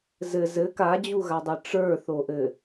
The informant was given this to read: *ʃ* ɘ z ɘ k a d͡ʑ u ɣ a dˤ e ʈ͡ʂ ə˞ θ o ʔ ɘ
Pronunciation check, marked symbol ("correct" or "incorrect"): incorrect